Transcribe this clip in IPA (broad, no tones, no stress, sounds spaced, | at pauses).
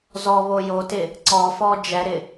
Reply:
z ɔ β o j o t ɪ | ǀ ɔ f ɔ d͡ʒ ɛ ɾ ɪ